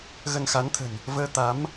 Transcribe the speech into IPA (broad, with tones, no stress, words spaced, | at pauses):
ɣə˧n xa˨˦nt̪ʰə̤˨˩n | vəː˧t̪a˨˦m